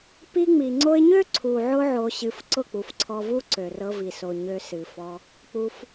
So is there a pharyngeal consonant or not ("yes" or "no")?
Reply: yes